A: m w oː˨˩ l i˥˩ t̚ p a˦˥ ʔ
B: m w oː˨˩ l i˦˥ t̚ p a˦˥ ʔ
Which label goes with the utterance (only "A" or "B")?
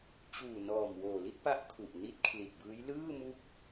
A